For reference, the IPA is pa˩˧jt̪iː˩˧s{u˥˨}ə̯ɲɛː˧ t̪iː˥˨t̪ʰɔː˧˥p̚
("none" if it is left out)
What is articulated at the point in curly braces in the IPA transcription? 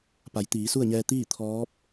u˥˨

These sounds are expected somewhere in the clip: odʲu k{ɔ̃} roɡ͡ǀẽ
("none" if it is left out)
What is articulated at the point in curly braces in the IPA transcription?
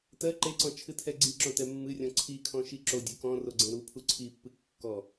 ɔ̃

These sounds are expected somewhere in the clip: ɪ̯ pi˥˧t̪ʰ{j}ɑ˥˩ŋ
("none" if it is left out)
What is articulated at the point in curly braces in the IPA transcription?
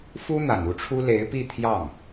j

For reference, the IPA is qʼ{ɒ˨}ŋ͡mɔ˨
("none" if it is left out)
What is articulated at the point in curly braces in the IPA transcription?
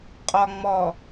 ɒ˨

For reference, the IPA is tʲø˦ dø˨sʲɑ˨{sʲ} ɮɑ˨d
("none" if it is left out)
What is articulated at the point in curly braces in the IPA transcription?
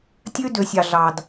none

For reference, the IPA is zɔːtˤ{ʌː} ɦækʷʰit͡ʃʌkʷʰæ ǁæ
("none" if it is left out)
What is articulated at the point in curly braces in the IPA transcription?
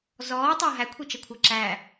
ʌː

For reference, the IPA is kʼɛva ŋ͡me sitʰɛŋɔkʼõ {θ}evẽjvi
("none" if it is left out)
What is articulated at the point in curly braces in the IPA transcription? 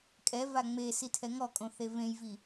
θ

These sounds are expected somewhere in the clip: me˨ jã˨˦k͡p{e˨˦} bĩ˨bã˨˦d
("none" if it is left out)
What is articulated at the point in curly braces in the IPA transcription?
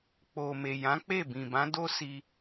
e˦˨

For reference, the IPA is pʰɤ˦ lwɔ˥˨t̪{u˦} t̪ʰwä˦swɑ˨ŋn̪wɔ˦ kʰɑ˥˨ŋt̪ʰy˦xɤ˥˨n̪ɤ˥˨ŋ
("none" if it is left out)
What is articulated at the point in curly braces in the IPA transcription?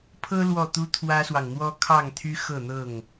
u˦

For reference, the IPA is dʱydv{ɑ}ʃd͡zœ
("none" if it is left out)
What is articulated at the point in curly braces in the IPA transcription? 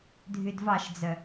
ɑ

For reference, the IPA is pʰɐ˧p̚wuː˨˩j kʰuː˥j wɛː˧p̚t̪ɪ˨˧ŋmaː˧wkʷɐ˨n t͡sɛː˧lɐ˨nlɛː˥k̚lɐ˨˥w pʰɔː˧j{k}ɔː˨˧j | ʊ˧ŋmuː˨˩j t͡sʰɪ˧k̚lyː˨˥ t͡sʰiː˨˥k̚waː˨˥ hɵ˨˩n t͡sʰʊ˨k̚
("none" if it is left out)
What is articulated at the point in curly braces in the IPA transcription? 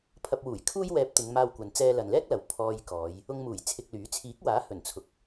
k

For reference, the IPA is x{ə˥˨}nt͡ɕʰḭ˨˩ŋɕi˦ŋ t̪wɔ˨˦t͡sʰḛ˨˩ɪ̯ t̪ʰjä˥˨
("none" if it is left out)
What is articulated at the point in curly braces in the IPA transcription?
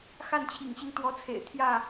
a˥˨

